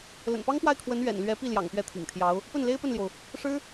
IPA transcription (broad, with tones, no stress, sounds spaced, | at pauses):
l ə̰˨˩ n p ɑ˥ ŋ p w a˥˩ ɪ̯ kʰ w ə˧˥ n ɥ ɛ̰˨˩ n l ɥ ɛ˧˥ p i˥˩ l j ɑ̰˨˩ ŋ p ɥ ɛ˥˩ t̪ʰ ḭ˨˩ ŋ t̪ʰ j ɑ˧˥ ʊ̯ | p ə˥˩ n l e˥ ɪ̯ p ə˥˩ n l j o˩ ʊ̯ | ʂ ɻ̩˥